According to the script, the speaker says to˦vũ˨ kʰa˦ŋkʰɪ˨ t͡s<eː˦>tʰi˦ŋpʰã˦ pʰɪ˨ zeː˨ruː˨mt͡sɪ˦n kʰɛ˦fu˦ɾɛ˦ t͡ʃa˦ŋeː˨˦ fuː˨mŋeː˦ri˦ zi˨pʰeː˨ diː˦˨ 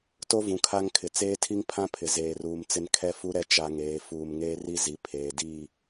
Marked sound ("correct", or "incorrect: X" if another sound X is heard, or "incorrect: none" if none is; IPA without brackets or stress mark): correct